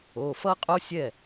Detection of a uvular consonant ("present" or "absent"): present